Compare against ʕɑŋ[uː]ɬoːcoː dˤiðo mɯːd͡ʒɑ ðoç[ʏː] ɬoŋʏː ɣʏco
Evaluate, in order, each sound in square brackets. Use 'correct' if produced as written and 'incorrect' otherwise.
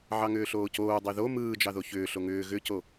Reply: incorrect, correct

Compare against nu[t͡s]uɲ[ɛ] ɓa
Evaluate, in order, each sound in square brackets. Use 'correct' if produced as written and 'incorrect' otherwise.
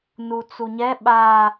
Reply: correct, correct

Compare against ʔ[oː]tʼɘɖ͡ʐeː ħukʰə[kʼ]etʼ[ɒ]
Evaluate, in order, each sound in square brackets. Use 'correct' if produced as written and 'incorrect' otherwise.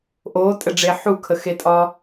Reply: correct, incorrect, correct

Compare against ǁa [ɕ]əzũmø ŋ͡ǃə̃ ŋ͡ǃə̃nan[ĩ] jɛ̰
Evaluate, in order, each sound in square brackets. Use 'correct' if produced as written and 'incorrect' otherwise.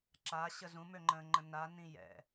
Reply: correct, correct

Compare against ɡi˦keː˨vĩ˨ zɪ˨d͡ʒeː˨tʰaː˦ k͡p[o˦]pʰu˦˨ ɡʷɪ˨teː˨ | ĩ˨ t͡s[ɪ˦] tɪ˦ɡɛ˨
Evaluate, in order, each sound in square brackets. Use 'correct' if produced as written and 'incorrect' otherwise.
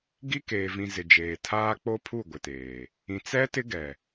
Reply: correct, incorrect

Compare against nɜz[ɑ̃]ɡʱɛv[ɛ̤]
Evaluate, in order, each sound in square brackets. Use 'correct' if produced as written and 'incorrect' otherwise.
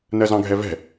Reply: correct, correct

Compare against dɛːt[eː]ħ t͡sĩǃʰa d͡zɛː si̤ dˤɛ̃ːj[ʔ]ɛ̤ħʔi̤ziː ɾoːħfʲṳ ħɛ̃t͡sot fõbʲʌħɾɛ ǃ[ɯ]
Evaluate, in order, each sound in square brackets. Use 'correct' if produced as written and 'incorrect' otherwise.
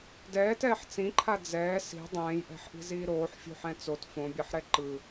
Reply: incorrect, correct, correct

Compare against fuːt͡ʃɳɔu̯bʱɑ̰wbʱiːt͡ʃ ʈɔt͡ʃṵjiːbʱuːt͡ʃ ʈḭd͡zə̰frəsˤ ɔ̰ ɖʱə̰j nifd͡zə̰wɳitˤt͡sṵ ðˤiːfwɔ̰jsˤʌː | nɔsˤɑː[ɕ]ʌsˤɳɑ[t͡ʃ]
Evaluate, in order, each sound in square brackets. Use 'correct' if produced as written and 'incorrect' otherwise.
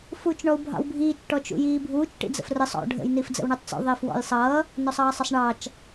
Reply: incorrect, correct

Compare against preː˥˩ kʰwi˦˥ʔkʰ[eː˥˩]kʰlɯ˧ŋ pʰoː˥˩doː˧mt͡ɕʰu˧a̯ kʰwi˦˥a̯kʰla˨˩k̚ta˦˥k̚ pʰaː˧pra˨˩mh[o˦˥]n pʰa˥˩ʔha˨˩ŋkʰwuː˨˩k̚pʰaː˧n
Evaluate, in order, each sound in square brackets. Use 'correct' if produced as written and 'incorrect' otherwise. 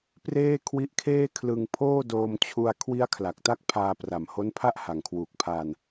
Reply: correct, correct

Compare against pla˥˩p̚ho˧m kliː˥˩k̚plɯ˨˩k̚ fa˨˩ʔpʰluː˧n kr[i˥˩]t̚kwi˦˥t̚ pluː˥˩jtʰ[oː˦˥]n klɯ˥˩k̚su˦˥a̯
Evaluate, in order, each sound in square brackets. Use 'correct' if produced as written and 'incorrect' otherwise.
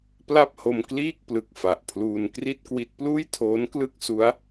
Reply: correct, correct

